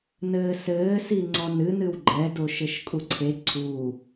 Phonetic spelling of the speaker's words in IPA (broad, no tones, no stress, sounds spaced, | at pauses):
n ɘː s ɘː s i ŋ͡ǀ ɔ n ɨ n ɨ w ɡ͡ǃ ɛ d o ʃ ɘ ʃ kʼ u ǀʰ e ǀʰ u